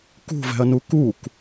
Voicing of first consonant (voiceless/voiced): voiceless